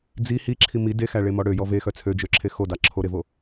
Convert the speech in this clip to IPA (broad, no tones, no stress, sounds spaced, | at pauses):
d͡z i h i ǁʰ i m i d e x æ ɭ e m ɔ ɽ ø j ɔ v e x œ t͡sʰ ø d͡ʒ ø ǁʰ e x o d ɑ ǁʰ o ɾ e v o